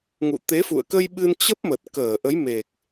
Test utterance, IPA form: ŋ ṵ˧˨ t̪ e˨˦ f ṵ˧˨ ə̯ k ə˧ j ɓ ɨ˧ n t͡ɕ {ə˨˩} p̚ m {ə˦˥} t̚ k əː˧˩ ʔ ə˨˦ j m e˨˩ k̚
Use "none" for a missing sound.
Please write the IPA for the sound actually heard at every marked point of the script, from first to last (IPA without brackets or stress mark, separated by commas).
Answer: ə˦˥, ə˨˩